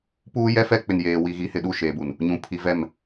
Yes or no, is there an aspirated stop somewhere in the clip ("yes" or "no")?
yes